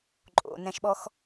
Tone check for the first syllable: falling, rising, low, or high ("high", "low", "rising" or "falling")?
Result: low